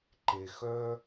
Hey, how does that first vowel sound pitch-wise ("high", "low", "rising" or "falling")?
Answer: low